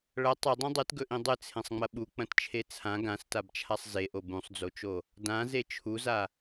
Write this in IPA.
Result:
ɭ ɐ tˤ ɵ dˤ ĩ dˤ ɨ t ɡ ɵ ʔ ĩ dˤ ɨ t͡sʰ ẽ sˤ ŋ͡m ɐ ɓ u k͡p ɐ̃ t t͡ʃʰ e t͡sʰ ã ɡ ã s t a b t͡ʃʰ a sˤ z e ʔ o b ũ sˤ d͡z o t͡ʃ o | d ã z e t͡ʃʰ u z a

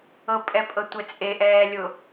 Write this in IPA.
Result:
ɤ pʼ ɛ pʼ ɤ tʷ ɛ t͡sʼ e ʔ ɛː lʲ ʊ

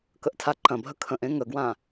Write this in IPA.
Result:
k ə ʔ tʰ a ǃ ɐ̃ bʱ ə kʰ ə̃ ʔ ẽ ŋ ə ɡ w ã

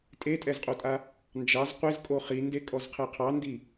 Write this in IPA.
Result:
tʼ e tʼ ɛ z qʼ o tʼ a | n d͡ʒ ɑ z qʷ e z kʼ o χ i n d e kʼ ɔ z qʰ e qʰ ɑ n d i

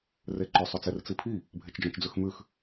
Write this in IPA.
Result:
r e ǃ ʏ sˤ ʏ t͡s e r t͡s i pʰ i | bʱ e t͡ʃ d͡ʒ ɔ̃ t͡ʃ d͡z ʉ x m ʉ x

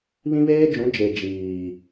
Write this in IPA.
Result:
β ĩ˦ β eː˦ d͡ʒ ũ˨˦ d͡ʒ e˨ d͡ʒ iː˨

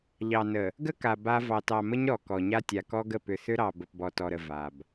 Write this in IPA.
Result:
ʎ ɑ˨ n ə˨ | ɡ ə˦ k a˨ b a˦ v ɑ˨ t ɑ˨ m ə˦ ɲ ɾ ɔ˨ k ɔ˨ ɲ a˦ tʲ a˨ k ɔ˦ ɡ ə˦˨ p ʏ˨ θ ʏ˦ ɾ ɑ˨ b ə˨ p b ɔ˨ t ɔ˨ ɾ ə˨ v a˨ b

